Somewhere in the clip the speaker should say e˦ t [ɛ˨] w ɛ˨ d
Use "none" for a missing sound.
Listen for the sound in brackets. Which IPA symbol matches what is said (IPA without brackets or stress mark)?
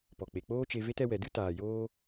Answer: ɛ˧